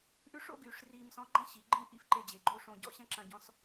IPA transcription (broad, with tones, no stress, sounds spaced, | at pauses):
ʔ ʉ˥ ʂ o̰˥ ɡ yː˩˧ ʂ r iː˧ m s ɔ̃˧˥ ɡ͡ǃ ɐ̃˥ ɕ i˩˧ ɡ͡ǃ ĩ˥ ʔ ḭ˧˥ f ǃ e˧ d͡ʑ e˩ ɡ͡ǃ o˥ ʂ õ˧ ɟ ɔ̰˥ ɕ ɐ̃˥ ǁ ɐ̃˧ ɟ ɔ̃˧˥ s